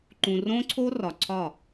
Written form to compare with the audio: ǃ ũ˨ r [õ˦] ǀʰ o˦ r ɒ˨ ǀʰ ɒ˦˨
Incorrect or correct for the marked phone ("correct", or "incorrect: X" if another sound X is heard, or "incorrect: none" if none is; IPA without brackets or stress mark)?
correct